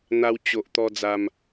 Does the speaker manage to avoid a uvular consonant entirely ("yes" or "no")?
yes